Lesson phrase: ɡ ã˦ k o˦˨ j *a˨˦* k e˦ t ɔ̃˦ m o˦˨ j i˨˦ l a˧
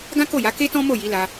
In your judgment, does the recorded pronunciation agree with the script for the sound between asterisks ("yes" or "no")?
yes